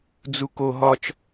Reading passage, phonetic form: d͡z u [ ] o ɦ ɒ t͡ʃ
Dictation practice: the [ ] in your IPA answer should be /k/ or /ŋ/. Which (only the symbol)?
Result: k